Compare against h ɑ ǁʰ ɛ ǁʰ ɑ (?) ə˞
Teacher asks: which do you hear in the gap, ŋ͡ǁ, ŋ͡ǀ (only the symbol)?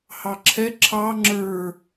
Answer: ŋ͡ǁ